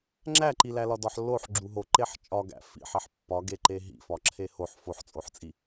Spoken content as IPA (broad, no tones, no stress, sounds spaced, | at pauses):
ŋ͡ǁ æ ǃ i l æ l ɒ d ɒ ħ lː o ħ ɡ͡ǁ u ɦ o ǃ e ħ t͡ʃʼ ɒ ɡ æ̰ f ḭ ħ e ħ pː ɒ ɡ e ǃ e ɦ ḭ f ɒ ǁʰ e h o ħ f o ħ t͡sʼ o ħ t͡sʼ i